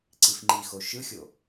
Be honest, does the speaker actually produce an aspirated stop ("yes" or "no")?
no